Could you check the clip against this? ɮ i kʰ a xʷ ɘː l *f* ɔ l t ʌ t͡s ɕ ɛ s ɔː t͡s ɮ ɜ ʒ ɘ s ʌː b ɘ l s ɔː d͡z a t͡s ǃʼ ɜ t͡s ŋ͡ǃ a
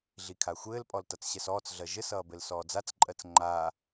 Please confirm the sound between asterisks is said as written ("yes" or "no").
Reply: no